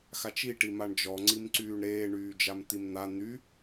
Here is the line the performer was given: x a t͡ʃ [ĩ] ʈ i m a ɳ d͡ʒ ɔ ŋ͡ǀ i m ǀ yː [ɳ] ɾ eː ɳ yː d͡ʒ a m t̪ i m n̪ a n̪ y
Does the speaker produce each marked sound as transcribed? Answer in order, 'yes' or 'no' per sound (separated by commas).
no, yes